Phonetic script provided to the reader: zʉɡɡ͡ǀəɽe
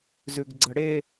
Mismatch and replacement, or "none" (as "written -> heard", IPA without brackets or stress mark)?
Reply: none